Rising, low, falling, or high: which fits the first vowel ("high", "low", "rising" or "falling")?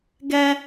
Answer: high